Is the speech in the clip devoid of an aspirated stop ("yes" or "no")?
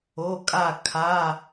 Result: no